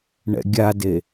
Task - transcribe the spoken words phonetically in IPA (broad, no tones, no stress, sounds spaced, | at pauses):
ɳ ɛ̰ ɡʲ a d e